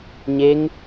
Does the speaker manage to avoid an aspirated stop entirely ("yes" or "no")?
yes